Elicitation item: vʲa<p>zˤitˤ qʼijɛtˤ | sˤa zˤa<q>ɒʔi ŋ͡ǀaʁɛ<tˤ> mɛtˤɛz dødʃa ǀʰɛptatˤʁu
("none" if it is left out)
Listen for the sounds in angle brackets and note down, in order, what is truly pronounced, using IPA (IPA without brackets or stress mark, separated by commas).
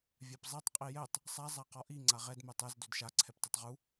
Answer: p, q, d